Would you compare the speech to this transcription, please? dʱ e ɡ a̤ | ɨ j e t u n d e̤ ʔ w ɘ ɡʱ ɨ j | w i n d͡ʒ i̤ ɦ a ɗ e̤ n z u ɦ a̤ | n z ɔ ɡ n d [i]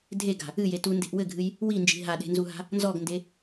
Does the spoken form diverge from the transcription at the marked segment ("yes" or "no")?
yes